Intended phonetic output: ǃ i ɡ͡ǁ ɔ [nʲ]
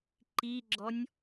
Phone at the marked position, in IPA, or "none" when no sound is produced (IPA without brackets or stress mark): nʲ